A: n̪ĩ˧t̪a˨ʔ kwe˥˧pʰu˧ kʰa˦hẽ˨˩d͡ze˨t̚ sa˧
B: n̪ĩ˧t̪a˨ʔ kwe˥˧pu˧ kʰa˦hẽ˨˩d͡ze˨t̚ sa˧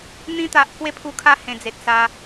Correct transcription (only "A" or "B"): A